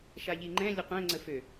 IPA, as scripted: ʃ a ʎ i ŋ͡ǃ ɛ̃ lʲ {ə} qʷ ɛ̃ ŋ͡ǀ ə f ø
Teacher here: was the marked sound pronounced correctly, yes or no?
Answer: yes